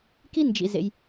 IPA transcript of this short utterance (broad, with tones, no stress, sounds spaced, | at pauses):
k i˥ n d͡ʒ ḭ˨ z ḛ˨ j